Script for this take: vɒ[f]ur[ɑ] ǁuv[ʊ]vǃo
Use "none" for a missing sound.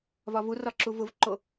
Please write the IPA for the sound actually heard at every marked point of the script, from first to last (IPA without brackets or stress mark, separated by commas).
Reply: v, ɒ, ʊ